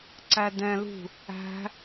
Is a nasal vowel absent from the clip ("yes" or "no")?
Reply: no